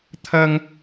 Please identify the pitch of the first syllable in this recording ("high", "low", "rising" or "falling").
high